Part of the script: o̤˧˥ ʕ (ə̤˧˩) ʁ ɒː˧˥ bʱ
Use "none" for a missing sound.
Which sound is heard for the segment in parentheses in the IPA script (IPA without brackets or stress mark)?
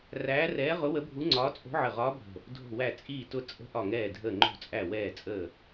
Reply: ə˧˩